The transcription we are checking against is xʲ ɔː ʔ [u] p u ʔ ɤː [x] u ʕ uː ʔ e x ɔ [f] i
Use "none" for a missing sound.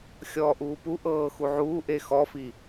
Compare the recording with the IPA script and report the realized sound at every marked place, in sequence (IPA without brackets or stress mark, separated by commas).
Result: uː, x, f